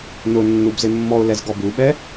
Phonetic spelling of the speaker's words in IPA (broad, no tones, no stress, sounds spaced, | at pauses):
n ʊ nː u b z ɪ mː ɔ ʊ̯ l ɛ z ɡ ɔ b u ɓ ɛ